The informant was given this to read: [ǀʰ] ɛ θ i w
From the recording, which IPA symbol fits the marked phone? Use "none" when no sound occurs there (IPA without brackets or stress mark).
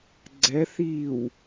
ɡ͡ǀ